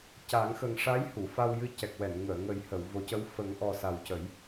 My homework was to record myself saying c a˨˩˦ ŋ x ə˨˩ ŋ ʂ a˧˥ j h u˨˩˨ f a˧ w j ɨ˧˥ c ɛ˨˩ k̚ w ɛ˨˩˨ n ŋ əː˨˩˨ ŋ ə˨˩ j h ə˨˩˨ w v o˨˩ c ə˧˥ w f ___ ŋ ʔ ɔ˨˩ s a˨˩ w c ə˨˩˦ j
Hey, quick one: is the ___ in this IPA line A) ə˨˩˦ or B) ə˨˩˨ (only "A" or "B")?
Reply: A